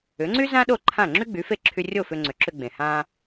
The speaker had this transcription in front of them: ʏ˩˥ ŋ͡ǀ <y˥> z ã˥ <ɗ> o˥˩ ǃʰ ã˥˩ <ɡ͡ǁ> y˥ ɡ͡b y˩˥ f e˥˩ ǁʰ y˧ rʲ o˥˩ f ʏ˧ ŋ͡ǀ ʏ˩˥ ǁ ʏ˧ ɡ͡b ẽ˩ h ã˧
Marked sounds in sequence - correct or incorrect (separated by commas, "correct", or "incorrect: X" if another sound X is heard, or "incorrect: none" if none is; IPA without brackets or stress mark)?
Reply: correct, correct, incorrect: ŋ͡ǁ